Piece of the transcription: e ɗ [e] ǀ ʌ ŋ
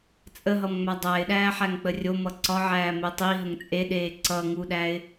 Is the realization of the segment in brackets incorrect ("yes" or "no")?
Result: yes